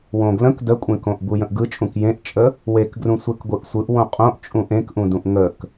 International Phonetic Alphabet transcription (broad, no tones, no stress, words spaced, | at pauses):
wõɡlə̃k dəkʷʼẽkõʔbu jə̃ʔɡɯt͡ʃʼũk jẽʔt͡ʃʼə | wekɡrũ sʷekɡʷɯʔsʷɯʔ wõqʼõʔ t͡ʃʼũʔẽkʔũdũʔ ŋək